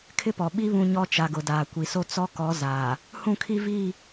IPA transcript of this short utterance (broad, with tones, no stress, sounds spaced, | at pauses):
kʰ ɪ˦ p ɔ˨ ɓ i˦ β ũ˦ ɲ ɔ˦ t͡ʃ a˨ ɡ ʊ˨ d aː˨ kʷ i˨ s o˦ t͡s ɔ˦ k ɔ˨˦ z aː˨ | h ũ˦˨ kʰ i˦ v iː˦˨